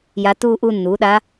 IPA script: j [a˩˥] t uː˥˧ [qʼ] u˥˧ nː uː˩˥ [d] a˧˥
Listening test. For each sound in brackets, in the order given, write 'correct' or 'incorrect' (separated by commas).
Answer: incorrect, incorrect, incorrect